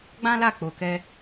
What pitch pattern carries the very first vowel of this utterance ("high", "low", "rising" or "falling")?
high